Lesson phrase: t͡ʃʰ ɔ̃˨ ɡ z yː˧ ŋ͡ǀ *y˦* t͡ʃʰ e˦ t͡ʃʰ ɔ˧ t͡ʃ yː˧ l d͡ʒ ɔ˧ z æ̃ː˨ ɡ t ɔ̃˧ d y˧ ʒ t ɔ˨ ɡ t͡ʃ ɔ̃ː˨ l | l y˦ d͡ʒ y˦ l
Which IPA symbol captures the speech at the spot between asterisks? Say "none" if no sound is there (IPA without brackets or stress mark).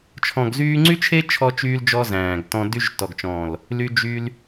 y˦